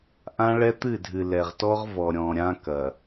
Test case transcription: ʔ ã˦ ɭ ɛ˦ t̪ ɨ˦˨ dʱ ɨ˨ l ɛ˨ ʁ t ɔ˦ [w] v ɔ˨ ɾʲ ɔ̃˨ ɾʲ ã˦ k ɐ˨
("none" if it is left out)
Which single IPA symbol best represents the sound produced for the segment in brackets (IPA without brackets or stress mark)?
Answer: ʁ